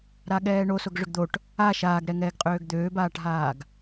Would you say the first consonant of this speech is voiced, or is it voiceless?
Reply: voiced